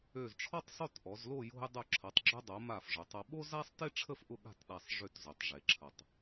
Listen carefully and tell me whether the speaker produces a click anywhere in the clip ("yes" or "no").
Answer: yes